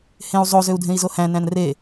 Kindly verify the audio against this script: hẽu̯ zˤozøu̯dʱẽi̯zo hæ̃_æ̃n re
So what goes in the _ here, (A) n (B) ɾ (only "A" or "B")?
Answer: A